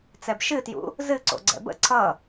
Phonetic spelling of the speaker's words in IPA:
t͡s ɛ b ʃ ɨ t j ṵ | z ɨ ǀ o̰ ɡ͡ǀ ɛ̰ b ə̰ ǀʰ ʌ

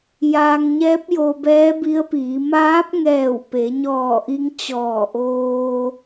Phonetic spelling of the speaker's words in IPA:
j aː˧ ŋ ɲ ɛː˧˥ p̚ j o˧ b ɛː˧˥ b i˧˥ ə̯ p iː˩˧ m aː˧˥ p̚ ŋ ɛː˧˩ w p e˩˧ ɲ ɔː˧˩ ʔ i˧ ŋ t͡ɕ ɔː˧˩ ʔ oː˧

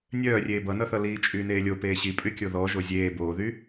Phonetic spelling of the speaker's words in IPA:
nʲ œː rʲ eː b ʌ n ʌ θ ʌ l iː t͡ʃʼ yː n eː lʲ o p eː ɕ i pʼ y kʲ o ð ɔ ʒ o zʲ eː b oː ð y

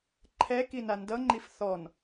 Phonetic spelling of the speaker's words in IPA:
ǃʰ ɛ k i n a n d ʌ ŋ͡ǃ i f θ ɔ n

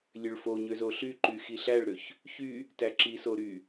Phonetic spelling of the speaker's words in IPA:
lʲ ø ɭ f o ɲ ø z o ɬ y ǃ y x i ɬ æ ɭ ɾ ø ç | ç y | t æ ǁ i s o ɾ y

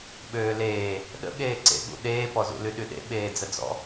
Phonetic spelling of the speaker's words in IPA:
ɓ øː l eː | ɗ ə̰ ɠ eː ǀ ḛ ɠ ṵ ɗ eː p ɔ z ṵ l y ɗ y ɗ ḛ ɓ eː d͡z ə d͡z ɔ̰

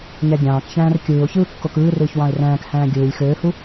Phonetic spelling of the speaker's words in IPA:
ɲ æ ɡʲ ɑ̃ː k ç æ̃ː r kʲ ɯː ʊ̯ ç ɯː kː o k ɯː r ɯː ç w ɑ̃ ɪ̯ r æ̃ː k h æ̃ː ɡʲ ɯː lʲ x øː h u

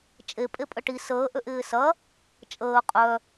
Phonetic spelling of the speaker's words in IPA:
t͡ʃʼ e pʼ e pʼ ə ʈ i s əː ʔ ø ʔ ɪː s ɐ | t͡ʃʼ əː qʼ œ

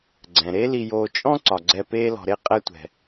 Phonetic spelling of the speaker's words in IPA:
ɡ͡ǀ ɛ̃˩ ɾ e˦ l i˨ j oː˨ t͡ʃʼ ɔ̃˥ ǀ ɒ˩ ɡ͡ǀ ɛ˨ p eː˦ l ɔ̤˨ ɾ e˥ qʼ ɛ˦ tʷ ɛ̤˩

